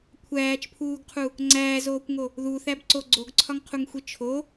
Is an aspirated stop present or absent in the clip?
present